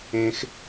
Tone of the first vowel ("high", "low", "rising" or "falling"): high